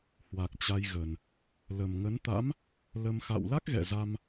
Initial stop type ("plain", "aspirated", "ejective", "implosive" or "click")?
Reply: plain